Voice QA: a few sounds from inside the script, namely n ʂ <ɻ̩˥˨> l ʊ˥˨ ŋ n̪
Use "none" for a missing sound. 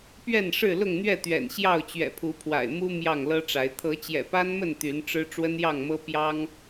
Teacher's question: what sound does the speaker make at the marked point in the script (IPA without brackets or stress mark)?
ɻ̩˥˨